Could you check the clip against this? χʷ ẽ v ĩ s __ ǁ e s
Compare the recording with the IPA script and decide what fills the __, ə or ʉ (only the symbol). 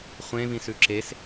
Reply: ʉ